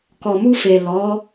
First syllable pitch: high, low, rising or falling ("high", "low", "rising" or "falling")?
low